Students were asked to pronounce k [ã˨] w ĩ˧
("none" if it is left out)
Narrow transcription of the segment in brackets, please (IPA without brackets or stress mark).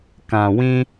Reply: ã˨